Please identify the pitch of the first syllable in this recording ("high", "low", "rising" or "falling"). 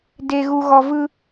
low